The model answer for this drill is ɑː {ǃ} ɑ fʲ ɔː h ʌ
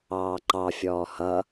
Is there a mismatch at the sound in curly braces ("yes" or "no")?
no